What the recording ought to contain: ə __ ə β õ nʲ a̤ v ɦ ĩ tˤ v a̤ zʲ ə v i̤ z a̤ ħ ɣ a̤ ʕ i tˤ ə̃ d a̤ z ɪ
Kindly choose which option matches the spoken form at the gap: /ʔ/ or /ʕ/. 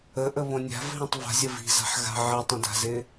ʔ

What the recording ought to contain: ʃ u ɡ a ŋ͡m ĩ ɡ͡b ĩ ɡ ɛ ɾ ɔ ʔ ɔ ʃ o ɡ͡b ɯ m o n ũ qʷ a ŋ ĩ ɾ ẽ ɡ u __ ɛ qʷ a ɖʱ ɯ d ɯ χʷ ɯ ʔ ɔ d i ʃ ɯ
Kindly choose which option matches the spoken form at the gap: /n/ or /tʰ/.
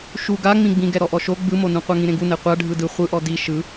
n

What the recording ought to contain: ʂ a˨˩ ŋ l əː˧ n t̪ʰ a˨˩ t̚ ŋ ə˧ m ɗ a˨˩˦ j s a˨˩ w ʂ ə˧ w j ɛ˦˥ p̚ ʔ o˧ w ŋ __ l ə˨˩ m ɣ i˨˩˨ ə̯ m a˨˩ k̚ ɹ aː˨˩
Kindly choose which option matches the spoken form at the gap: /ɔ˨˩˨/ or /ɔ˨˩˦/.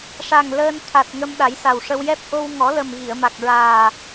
ɔ˨˩˦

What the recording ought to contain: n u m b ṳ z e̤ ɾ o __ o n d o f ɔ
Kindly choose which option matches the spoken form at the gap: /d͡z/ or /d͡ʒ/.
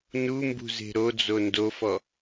d͡z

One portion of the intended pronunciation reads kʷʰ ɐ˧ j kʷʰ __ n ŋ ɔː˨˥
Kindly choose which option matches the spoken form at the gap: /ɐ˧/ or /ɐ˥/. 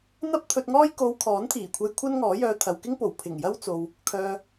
ɐ˥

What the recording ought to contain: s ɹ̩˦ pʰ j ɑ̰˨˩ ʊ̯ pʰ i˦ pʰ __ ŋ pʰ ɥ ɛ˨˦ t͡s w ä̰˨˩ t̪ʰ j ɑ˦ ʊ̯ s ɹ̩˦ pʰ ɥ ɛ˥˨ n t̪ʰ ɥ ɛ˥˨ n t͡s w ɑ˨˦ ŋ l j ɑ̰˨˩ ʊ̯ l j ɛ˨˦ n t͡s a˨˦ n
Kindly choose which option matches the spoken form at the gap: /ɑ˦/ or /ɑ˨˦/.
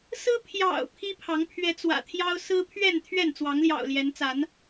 ɑ˨˦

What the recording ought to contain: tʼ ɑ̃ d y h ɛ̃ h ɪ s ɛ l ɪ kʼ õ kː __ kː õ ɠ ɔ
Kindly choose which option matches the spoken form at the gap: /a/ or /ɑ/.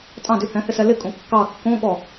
ɑ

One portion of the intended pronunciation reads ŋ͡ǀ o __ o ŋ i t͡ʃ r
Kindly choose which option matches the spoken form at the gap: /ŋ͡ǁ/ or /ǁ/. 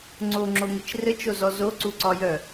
ŋ͡ǁ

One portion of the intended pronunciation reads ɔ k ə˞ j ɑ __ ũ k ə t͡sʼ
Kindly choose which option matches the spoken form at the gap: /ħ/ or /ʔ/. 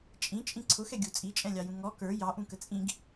ʔ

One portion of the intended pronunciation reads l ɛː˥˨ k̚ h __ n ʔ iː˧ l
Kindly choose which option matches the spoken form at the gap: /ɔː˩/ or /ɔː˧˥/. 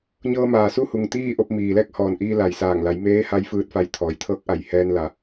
ɔː˩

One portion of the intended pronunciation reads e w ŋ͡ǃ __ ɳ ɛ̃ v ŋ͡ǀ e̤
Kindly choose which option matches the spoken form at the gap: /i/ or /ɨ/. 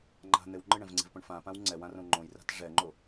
ɨ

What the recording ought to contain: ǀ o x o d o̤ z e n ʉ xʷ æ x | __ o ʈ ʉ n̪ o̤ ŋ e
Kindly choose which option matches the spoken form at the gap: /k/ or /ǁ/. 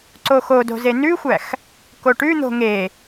k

